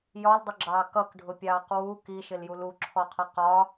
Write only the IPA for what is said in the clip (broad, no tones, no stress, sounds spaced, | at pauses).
j ɒ l dˤ ʊ ɡ͡ǁ ɑː k ʌ k ɖʱ ʊ pʲ ɑː q w u k i ʃ ɪ l j u l u ǁʰ ɔ qʰ ʌ q ɒ